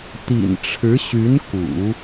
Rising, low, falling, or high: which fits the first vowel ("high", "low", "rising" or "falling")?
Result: low